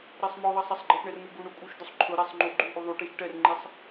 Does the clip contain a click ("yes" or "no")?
yes